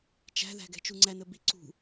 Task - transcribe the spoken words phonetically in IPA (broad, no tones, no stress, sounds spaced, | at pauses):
t͡ʃ æ̤ ð æ̤ ɡ ɛ̤ t͡ʃ u ŋ͡ǀ æ n ə b i ǀ ṳ